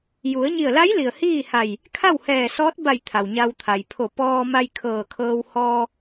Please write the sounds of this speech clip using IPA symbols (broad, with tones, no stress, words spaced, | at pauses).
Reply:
ju˩˧ə̯ɲi˧˩ə̯la˧˥jli˩ə̯ hiː˥˨ha˧˩j | kʰa˥˨whɛː˧˩sɔː˧˥t̚ba˧˩j t̪ʰa˩wɲa˧wt̪ʰa˩j pʰo˧˩ pɔː˧ma˧j kʰɤː˧˩kʰɤː˧w hɔː˧